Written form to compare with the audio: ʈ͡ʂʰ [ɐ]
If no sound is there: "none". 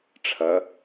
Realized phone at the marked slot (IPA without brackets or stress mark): ɐ